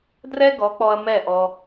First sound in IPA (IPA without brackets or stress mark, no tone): d